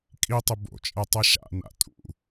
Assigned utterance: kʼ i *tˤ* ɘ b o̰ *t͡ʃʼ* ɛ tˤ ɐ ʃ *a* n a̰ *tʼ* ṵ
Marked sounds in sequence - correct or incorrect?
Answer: correct, correct, incorrect: a̰, correct

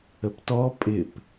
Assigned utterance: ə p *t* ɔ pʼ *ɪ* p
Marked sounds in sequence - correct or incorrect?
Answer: correct, correct

